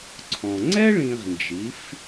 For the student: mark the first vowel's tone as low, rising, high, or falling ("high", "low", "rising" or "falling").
low